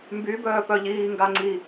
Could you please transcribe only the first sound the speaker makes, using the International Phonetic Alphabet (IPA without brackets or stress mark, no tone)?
m